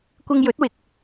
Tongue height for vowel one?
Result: high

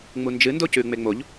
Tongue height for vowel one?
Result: high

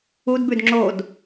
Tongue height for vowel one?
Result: high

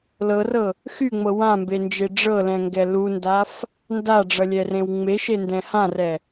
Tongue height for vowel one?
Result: mid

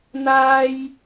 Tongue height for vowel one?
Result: low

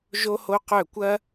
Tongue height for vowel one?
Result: mid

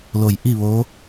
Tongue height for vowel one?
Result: mid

